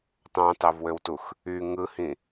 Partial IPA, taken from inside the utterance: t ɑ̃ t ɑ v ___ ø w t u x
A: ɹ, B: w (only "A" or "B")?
B